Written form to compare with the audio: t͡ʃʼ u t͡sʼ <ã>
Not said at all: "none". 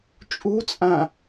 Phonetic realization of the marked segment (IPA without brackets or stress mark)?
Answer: ã